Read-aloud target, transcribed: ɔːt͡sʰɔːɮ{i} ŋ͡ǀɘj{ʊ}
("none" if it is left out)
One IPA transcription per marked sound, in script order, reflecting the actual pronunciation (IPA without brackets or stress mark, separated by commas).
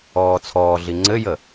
i, ə